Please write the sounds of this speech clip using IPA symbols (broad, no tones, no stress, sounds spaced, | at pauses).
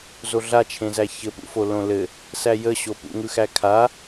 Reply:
z o ɮ a t͡ʃʰ ẽ z æ ç ɘ p ṵ f o l õ l ɘ | s æ j ə ɕ o p ṵ ŋ ɯ x æ kʰ a